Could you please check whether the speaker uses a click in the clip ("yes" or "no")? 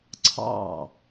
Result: yes